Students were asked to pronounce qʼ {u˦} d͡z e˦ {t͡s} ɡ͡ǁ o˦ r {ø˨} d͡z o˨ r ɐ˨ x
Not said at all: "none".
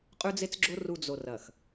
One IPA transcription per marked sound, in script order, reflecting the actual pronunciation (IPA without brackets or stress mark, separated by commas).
ʉ˦, t͡s, u˨